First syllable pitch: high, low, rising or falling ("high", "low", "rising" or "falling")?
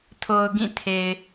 low